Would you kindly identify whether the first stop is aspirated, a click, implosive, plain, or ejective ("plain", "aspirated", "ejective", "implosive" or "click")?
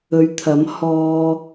aspirated